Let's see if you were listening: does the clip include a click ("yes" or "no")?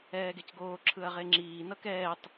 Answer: yes